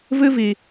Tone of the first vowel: high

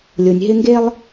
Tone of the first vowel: low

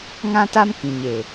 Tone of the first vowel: high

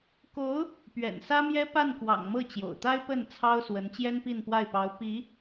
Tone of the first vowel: rising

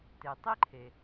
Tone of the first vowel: low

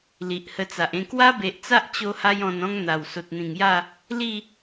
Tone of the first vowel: low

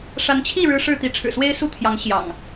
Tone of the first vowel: rising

